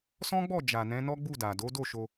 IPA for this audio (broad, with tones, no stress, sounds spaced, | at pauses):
s ɔ̃˦ ɡ͡b ɔ˦˨ d͡ʒ a˨ n ɛ̃˨˦ n ɔ˦ ɡ͡b u˦˨ d a˨ d o˨˦ d o˦˨ ʃ o˧